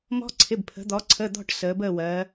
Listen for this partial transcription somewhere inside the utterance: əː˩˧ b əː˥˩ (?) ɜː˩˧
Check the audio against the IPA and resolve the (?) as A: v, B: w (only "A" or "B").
B